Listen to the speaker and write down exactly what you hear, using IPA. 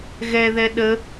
ɣ ɛ ð ɛ ɗ ə

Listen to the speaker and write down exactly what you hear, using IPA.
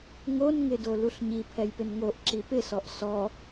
ŋ o n ŋ ɪ d o l u ɬ ɲ i pʰ ɛ j p ɪ n ŋ o ʔ ǁ i p ɪ s ɔ ʔ s ɔ

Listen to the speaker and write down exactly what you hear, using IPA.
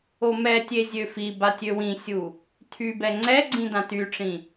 o m ɛ tʲ e zʲ ø f i b a tʲ ø w ĩ sʲ u | tʰ y b ɛ ŋ͡ǀ ɛ ɡ͡ǀ ĩ d ã t y ʈ͡ʂ ĩ

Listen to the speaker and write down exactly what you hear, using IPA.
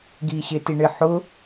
ɡ iː ɕ ɪ t i ɳ ɪ ħ ʊ

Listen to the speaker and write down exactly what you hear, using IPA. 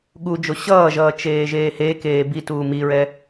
ɠ u d͡ʒ o ɕ ʌː ʒ ʌː t͡ʃ eː ʒ eː h e k eː b i t uː m i ɹ ɛ

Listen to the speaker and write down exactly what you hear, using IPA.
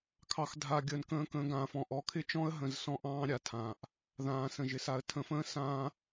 kʰ ɑ˨ x dʱ a˨ ɡʲ əː˨ n k ə̃ː˨ k ə̃ː˨ ɡ ã˨ f ɔ̃˨ ʔ ɔ˨ kʰ ɪ˦ t͡ʃ ɔ̃˦ ə̯ ɦ ə̃˨ z s ɔ̃˦ ʔ ɑ̃ː˦ ɾʲ a˨ tʰ ãː˨ ʔ | ð ãː˨ s ə̃˨ ʒ ɪ˨ s a˨ ə̯ tʰ ə̃˨ f ə̃ː˦ s ãː˦

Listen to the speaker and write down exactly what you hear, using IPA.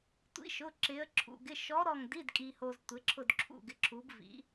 tʷ ḭ˨˥ ʃ ʊ˩˧˩ ǁ ɪ˩˧ ə̯ ǁʰ ṵ˩ ɡ ɪ˩˧˩ ʃ ɔ˨˥ ɾ ɔ˧˩ ŋ d i˩˧˩ d kʼ i˩ h o˩ z tʷ e˩˧ ǁʰ ʊ˧˩ d ǁʰ ṵ˧˩ ɡ ɪ˩˧˩ ǁʰ u˩˧ b v ḭ˩˧

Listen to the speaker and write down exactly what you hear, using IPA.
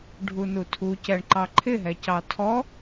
ɖʱ u n u tʰ u c ɛ ɳ ǃ ɑ ǃʰ ɪ ɦ ɛ c ɑ tʰ ɔ

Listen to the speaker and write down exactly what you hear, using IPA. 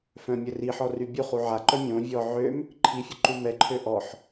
f œ̃ mʲ ə r i ħ ɔ r y bʲ u χ u ʕ a ǃ œ mʲ õ vʲ ɔ ʕ ø m | ǃʰ i fʲ ə ǃ u m ɛ ǃʰ ø ʔ ɔ ħ

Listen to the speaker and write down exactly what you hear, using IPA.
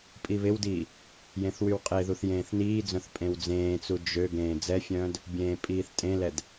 pʼ i β ɪ w d iː | j ẽ θ w y w qʼ e ð u θ j ẽː θ n iː d͡z œ̃ θ pʼ ẽ w d͡z ẽː t͡s u d͡ʒ ø ɡ ẽː d͡z ɛ fʲ œ̃ː d | bʲ ẽː pʼ iː θ tʼ ẽ l ɛ d

